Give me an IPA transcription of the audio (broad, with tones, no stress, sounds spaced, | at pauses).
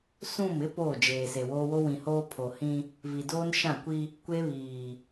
s ũ˦˨ m ɪ˦ p oː˦˨ d͡ʒ eː˨ s e˨ w oː˦ w o˦ w ĩ˨ h oː˦ pʰ o˨ h ĩ˦ | v i˨ d oː˦ n ʃ ã˦˨ kʷ i˦ | kʷ e˦ β iː˨